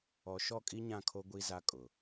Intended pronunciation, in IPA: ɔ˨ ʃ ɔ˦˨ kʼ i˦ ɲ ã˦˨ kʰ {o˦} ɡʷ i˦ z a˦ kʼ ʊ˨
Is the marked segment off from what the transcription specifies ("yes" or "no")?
no